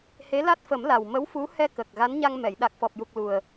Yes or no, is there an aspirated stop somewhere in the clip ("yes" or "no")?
no